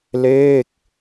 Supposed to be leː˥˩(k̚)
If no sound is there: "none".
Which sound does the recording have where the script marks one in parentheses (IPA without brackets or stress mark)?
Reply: k̚